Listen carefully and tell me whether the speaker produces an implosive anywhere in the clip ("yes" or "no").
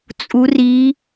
no